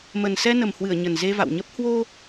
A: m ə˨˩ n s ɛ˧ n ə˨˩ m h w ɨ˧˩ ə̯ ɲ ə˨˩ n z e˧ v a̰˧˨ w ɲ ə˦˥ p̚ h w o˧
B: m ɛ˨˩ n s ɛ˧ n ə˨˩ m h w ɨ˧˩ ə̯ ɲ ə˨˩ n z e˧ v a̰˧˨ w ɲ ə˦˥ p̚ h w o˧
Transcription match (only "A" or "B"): A